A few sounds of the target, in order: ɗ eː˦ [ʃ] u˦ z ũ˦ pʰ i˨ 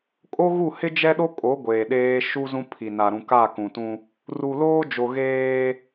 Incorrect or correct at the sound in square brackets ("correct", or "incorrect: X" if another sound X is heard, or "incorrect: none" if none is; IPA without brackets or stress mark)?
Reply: correct